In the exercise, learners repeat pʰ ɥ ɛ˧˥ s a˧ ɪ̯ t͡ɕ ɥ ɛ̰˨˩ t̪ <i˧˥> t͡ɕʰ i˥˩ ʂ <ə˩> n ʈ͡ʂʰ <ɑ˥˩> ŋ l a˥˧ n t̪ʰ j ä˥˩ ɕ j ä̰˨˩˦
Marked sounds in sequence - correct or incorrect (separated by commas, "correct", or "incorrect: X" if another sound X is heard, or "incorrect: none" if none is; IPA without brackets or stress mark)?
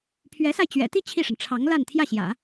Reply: incorrect: i˥˧, correct, incorrect: ɑ˧˥